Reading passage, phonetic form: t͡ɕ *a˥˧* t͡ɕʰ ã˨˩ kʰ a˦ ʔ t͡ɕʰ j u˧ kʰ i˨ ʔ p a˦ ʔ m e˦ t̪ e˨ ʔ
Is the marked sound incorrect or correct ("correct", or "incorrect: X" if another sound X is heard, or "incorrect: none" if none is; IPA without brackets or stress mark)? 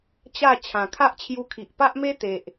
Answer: correct